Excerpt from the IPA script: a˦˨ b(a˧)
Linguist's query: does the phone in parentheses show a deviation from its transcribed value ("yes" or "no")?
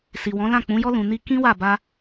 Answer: no